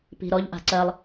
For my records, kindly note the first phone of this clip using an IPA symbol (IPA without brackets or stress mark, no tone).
p